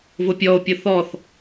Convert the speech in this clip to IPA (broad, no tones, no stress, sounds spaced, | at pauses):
v ʊ pʲ ɔ o̯ pʲ ʊ θ ɔ θ